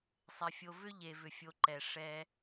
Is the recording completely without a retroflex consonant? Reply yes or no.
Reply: no